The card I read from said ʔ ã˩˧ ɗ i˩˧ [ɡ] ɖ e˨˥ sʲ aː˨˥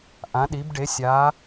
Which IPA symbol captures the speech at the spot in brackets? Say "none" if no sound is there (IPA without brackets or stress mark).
b